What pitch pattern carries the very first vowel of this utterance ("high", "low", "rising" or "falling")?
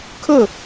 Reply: falling